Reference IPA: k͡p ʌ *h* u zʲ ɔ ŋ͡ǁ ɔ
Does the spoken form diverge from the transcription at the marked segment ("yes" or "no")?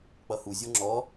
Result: no